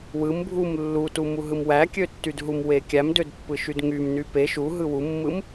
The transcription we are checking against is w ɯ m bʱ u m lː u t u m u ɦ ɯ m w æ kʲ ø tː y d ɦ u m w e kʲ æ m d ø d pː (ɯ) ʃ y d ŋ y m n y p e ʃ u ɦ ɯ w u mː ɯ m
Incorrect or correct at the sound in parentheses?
correct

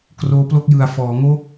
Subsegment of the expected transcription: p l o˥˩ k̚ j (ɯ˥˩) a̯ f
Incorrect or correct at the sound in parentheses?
incorrect: ɯ˨˩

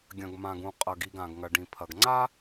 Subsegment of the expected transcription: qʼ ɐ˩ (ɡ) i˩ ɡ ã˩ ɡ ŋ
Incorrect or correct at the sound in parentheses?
correct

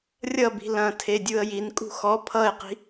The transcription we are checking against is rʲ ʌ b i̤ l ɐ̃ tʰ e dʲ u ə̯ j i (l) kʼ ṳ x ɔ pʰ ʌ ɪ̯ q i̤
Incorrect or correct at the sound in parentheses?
incorrect: n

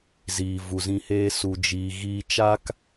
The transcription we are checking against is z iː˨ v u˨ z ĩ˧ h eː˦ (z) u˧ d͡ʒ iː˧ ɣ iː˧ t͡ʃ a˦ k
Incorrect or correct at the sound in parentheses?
incorrect: s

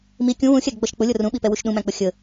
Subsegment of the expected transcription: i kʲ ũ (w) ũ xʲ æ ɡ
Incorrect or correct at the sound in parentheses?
correct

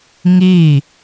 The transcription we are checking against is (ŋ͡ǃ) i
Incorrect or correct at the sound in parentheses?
incorrect: ŋ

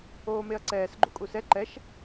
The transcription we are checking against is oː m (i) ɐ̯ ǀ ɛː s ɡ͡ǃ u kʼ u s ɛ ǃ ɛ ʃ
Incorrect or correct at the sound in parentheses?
incorrect: e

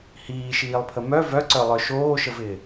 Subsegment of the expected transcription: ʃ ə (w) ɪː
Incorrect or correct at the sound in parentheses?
incorrect: v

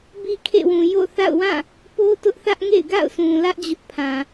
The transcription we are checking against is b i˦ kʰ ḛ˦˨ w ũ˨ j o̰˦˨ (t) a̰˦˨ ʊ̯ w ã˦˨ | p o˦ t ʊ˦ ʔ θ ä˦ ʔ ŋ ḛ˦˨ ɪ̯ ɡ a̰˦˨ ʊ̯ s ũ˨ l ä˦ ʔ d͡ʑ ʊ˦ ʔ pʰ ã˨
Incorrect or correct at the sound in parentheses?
incorrect: θ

